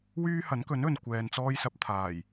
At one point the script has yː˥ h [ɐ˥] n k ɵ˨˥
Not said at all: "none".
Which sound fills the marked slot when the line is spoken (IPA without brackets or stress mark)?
ɐ˨˥